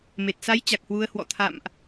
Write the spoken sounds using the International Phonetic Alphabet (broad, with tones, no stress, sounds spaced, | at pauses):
m e˨˩ t̚ s a˨˦ j t͡ɕ a˨˩ k̚ h w u˨˦ ə̯ h w ɔ̰˧˨ t̪ʰ a̰˧˨ m ʔ